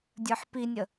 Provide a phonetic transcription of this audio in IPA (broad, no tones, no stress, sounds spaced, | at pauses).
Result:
dʲ ə˞ ħ p i nʲ ə